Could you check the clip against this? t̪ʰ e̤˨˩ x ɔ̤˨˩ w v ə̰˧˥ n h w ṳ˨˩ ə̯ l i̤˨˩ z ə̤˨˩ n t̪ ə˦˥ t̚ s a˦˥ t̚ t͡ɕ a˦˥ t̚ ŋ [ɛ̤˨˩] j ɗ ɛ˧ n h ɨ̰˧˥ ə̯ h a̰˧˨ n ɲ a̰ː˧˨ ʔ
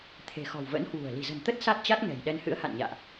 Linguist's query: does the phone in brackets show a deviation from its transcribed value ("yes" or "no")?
no